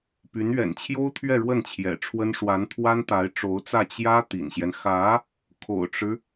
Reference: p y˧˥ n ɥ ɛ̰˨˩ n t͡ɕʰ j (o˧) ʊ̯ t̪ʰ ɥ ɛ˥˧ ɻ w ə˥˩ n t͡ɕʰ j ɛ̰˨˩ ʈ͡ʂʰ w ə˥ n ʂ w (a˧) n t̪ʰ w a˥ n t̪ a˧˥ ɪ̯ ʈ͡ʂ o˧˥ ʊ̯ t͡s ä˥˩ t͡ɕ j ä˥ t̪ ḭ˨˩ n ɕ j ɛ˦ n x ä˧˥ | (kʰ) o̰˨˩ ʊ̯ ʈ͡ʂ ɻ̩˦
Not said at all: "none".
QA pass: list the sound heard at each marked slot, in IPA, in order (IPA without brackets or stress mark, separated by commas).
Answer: o˥, a˧˥, kʰ